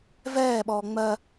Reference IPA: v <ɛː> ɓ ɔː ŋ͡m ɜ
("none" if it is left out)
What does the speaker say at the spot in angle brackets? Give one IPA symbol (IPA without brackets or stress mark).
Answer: ɛː